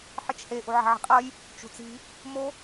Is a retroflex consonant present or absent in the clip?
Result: absent